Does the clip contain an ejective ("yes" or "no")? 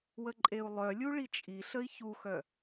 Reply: yes